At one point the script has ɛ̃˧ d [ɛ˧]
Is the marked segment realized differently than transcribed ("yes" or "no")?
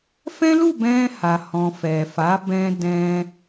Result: yes